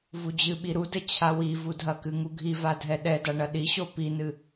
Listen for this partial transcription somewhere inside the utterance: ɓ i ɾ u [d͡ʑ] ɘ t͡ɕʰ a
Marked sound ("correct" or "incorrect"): incorrect